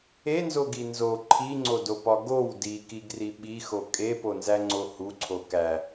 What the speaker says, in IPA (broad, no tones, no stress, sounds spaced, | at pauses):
e n z o ɡ i n z o ǃʰ i ŋ͡ǀ o d o p ɒ ɡ o w d i k i ɡ r i ɓ i x o kʼ e p o n z æ ŋ͡ǀ o h u ǀʰ o k æ